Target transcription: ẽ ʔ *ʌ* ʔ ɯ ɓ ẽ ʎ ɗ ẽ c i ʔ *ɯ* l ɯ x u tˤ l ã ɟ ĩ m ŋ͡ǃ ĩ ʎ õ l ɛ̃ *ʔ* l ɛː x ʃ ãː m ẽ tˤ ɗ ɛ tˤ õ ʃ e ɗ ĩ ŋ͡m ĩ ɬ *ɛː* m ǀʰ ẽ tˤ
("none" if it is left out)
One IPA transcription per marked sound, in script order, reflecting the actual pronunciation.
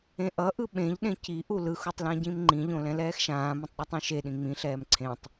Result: ʌ, u, none, ɛː

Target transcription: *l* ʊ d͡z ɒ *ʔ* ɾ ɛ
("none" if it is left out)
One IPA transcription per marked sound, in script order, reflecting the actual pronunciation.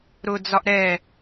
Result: ɾ, ʔ

